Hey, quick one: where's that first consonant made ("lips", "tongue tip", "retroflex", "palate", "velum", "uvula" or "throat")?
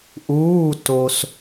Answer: throat